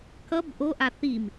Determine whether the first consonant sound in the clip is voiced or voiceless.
voiceless